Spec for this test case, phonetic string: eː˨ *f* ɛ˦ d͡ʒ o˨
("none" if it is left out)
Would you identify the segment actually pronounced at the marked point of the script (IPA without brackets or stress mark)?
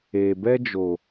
b